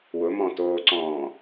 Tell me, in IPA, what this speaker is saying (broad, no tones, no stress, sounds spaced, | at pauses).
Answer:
w ʊ m ɔ̃ t oː ǀ ɔ̃ː